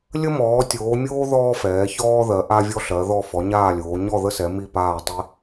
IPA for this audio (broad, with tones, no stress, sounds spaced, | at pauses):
lʲ ə˦ m ɔː˩˧ tʲ oː˩˧ mʲ oː˦ ð ɔː˦ f ɛː˩˧ ç ɔː˦ ð ɜ˩˧ ʔ a˦ vʲ ɔ˦ ɬ ɜ˩˧ ð ɔ˦˨ f ɔ˩˧ ɲ aː˦˨ lʲ oː˩˧ ɲ ɔ˦˨ ð ə˦ s ɛ˩˧ m i˦˨ p aː˦˨ tˤ i˦